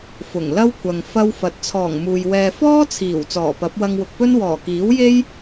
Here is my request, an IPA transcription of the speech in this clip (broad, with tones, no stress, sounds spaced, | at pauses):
f ʊ˨˩ ŋ l ɐ˥ w kʷʰ ɐ˨ ŋ f ɐ˥ w f ɐ˨˥ t̚ t͡sʰ ɔː˨˩ ŋ m uː˨ j w ɛː˧ f ɔː˥ t͡sʰ iː˨˩ w t͡s ɔː˨˩ p ɐ˨˥ p̚ w ɐ˧ ŋ w ʊ˨ k̚ p ɵ˥ n w ɔː˨˩ k iː˨˥ w j e˥ j